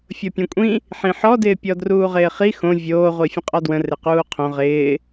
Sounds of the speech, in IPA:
fʲ o pʲ õ kʷʼ ĩ | ħ ĩ ħ ɔ d ɪː pʲ ɔ d r uː ʁ ɪː χ i x õ vʲ oː ʁʷ i fʲ ə̃ qʼ ɔ d w ə̃ r ɪ q uː qʰ õ ʁ ɪː

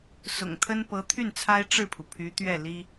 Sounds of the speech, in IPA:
s ʊ̰˨˩ ŋ t̪ʰ ə˥ n p ɤ˧˥ t̪ʰ y˥˩ n t͡sʰ a˥ ɪ̯ ʈ͡ʂ ɻ̩˥˩ pʰ u˩ pʰ y˧˥ t̪ ɥ ɛ˥˩ l i˥

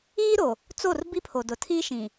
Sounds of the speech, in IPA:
iː˦ ɾ o˨ | t͡s o˦˨ r b i˦ pʰ o˨ d ʊ˨ tʰ iː˦ ʃ ĩ˨

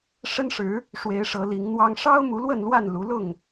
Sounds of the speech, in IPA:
ʂ ə˦ n ʂ ɻ̩˨˦ | ʂ w e˨˦ ɪ̯ ʂ ɤ˨˦ l i˨˦ ŋ n̪ w ɑ˦ ŋ ʂ ɑ˦ ʊ̯ m u˨˦ l w ə˥˨ n l w a˥˨ n l u˨˦ l ʊ˥˨ ŋ

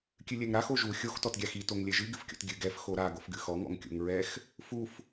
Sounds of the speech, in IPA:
kʲ ɨ lʲ ɛ ŋ ɾ a x o ʒ u xʲ o x t ɔ t ɡʲ a x i t o ŋ lʲ ɛ ʒ ɨ ɡ ɨ f kʲ o̰ t ɡʲ ɨ ɡ ɛ f x o ɾ a ɡ o f ɡ ɨ x ɔ ŋ ɔ̰ ŋ kʲ o̰ ŋ ɹ ɛ x | f u f

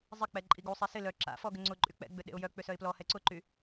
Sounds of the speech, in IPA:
zˤ ɪ k͡p ɛ ǃʼ i ɡ u sˤ e s ɪ l œ ǁ a̰ f ɔ ɡ ʏ ŋ͡ǀ ʊ ǃʼ y k͡p ɛ̰ ɡ͡b ʏ ɗ ḛ ʊ̯ j œ k͡p ʏ s œ ɪ̯ p l ɔ h ɛ ǀ ʊ ǃ y

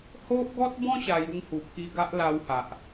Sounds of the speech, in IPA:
h o˦ ʔ ɡ ɔ˦ t̚ b ɔ̃˦ ɕ a˧ j u˥˧ ŋ h u˨˩ pʰ i˧ ɡ a˦ ʔ l a˧ w h a˨ ʔ

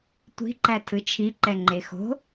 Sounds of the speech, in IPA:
tʷ i̤ ǃ æ tʰ ɯ t͡ʃʰ i ǃ ɛ ŋ͡ǃ e x o̤

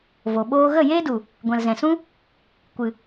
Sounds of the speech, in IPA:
v o˨ ɓ oː˦ ɣ ə˦˨ j eː˦ d u˨ | ɡʷ ɛ̃˨ l z ɛ̃˨ s ũ˦ | kʷ ɨ˨

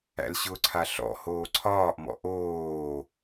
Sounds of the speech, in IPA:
æ̰ l ɕ ʊ ǀʰ a ɬ ɔ̰ h oː ǀʰ ɒː ʔ m ɔ̰ ʔ oː

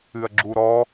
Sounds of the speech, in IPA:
ɨ ɐ̯ ɡ͡ǁ u ɾ ɔ

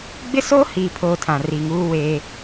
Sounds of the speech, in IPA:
ɡ͡b ɪ˦ s oː˦ h iː˨ pʰ oː˨ tʰ ã˨ r i˨ ŋ uː˦ w eː˦

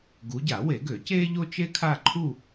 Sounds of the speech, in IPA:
ɡ u˨˦ ɟ a˨˩˦ w e˨˩˦ ɡ ø˨˩˦ c eː˥ ʎ o˥ t͡ʃ e˥ kʰ a˥˧ ǃʰ u˥˧

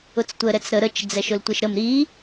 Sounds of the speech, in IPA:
ʊ t͡s tʷ ə ɾ ɛ t͡s ɾ ə ɾ ə t͡ʃ d͡z ɛ ʃ ʊ l tʷ e ʃ ɾ ə m ɾ i

